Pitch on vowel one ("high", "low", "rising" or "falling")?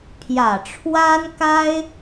low